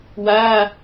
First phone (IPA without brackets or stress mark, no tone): w